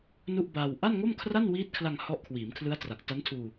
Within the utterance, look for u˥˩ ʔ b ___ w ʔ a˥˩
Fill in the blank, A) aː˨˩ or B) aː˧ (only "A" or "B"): B